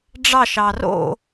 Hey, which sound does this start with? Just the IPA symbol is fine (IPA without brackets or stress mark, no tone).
ɖ͡ʐ